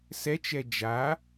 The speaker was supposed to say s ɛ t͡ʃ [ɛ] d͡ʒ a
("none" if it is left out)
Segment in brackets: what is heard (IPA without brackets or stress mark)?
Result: ɛ